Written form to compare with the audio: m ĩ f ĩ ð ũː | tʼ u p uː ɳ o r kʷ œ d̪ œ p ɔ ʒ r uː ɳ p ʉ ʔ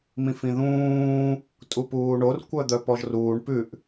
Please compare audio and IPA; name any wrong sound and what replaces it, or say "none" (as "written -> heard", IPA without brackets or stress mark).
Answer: none